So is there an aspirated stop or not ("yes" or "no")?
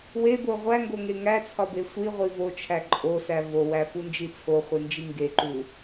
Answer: yes